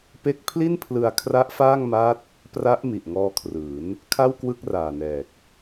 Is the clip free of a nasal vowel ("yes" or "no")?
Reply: yes